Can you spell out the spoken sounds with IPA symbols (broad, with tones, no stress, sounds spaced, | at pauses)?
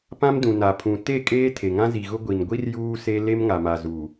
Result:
p ã˦ m d ũ˨ n a˨ pʰ ũ˨ t e˦˨ kʼ eː˦ tʰ e˨ ŋ ã˦ z i˨ ɣ ʊ˦ ɡʷ i˨ n ɡʷ i˦ r j uː˦ s e˦ l e˦ m ŋ a˨ m a˨ z uː˨